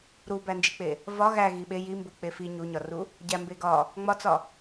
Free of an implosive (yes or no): no